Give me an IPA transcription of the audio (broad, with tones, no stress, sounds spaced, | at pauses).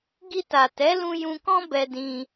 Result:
ɡ i˧ t a˨ t ɛ˨˦ l ũ˧ j ũ˧ k ɔ̃˦ b ɛ˧ d ĩ˧